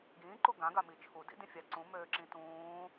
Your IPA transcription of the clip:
ɡ ĩː ǃ u ɡ ã ɡ a m i t͡ʃʰ u d ḭ d ĩ fʲ a ǀ ũ m øː ǁ ĩ t ũː

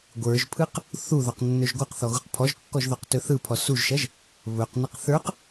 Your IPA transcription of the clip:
ɡʷ ə˞ ʒ pʰ ɯ q | θ u ð ɔ q nː ɵ ʒ ɡʷ ɯ q θ ɔ ɣ u q pʰ ɔ ʒ kː ɔ ʒ ð ɔ q t ɵ θ ɯ pʰ ɔ s u ʒ ʃ ɐ ʒ | β ɵ q n ɐ q θ ə˞ q

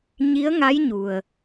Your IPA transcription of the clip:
ɲ i˧˥ ə̯ ŋ a˧˥ j ɲ u˩ ə̯

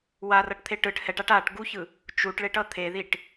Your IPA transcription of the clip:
w a r ʌ ʈ t̪ʰ e ʈ ɯ ʈ h ɛ ʈ a ʈ a ʈ ɡ u ç ɯ | t͡ʃ u ʈ ɭ e ʈ ʌ t̪ʰ e ð i ʈ

